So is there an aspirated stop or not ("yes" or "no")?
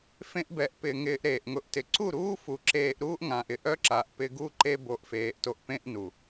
no